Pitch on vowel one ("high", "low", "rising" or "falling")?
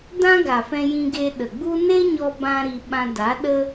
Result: high